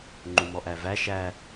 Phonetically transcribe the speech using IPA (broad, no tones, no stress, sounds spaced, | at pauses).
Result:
ŋ͡ǃ u m ɔ ʔ æ v æ ʃ æ